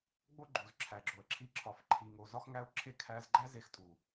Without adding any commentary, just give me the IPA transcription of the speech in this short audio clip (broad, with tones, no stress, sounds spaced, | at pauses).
ɡ͡b o˦ ɡ͡ǃ u˨ z ǁʰ æ˨ ɡ͡ǁ o˨ ə̯ ǁʰ i˧ ǁʰ ɒ˨ f ǃʰ i˨ ŋ o˨ z ɒ˧ x ŋ æ˧ ʊ̯ ǁʰ e˧ kʰ æ˧ z ɡ͡ǃ æ˦ z e˧ x tʼ u˨